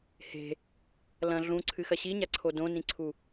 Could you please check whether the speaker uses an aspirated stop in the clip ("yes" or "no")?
yes